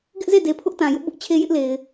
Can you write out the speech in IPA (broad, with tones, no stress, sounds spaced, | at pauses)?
ɡ ɪ˦ ʔ z e˦˨ d e˨ pʰ ʊ˦ ʔ t ã˨ j ʊ˦ ʔ b ʊ˦ ʔ t͡ɕʰ e˦ j ɪ˦ ʔ l e˨ ɪ̯